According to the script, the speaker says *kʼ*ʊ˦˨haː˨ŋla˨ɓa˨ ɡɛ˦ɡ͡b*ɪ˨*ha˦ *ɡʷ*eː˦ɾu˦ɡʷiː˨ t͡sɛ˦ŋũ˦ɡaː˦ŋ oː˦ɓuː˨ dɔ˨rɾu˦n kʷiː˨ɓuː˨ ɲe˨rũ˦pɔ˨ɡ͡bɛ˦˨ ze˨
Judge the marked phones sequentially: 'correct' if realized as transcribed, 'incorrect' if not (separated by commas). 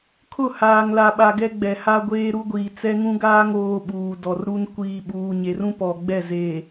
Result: incorrect, incorrect, correct